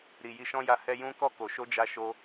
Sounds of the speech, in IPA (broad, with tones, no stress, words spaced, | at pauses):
ɾi˨ji˧ʃɔ̃˦ja˧ hɛ˦ jũ˦ kɔ˦˨ ko˨ ʃo˧d͡ʒa˧ ʃo˧